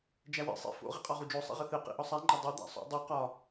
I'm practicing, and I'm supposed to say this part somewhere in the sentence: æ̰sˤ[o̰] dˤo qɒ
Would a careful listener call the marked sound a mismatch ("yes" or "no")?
no